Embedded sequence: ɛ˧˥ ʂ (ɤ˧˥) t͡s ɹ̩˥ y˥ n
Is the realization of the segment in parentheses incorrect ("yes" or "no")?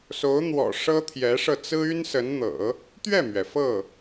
yes